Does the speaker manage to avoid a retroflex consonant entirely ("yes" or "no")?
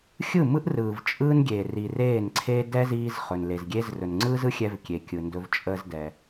yes